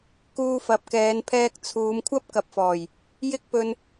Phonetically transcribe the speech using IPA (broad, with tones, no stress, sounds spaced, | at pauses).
k uː˧ f ɐ˨ p̚ k ɛː˨˧ n pʰ ɛː˧ k̚ t͡sʰ uː˨˧ m kʷʰ ɐ˥ p̚ k ɐ˨ p̚ f ɔː˨˩ j | j ɪ˥ k̚ p ɵ˧ n